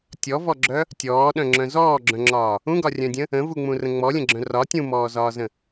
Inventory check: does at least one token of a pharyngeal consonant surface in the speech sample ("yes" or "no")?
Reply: no